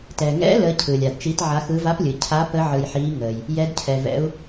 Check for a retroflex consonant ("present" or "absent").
absent